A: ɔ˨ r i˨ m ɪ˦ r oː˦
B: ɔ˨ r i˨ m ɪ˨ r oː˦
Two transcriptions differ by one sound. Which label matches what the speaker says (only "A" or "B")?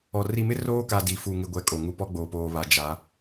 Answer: A